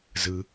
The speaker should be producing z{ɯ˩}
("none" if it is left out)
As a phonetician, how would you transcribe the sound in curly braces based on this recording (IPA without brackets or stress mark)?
ɯ˩